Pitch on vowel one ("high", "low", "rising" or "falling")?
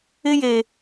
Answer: high